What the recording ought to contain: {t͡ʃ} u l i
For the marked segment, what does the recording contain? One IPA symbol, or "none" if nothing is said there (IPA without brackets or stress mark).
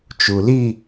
t͡ʃ